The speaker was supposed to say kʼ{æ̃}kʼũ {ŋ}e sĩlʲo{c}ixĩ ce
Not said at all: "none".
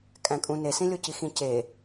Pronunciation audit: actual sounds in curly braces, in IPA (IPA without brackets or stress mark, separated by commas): æ̃, n, c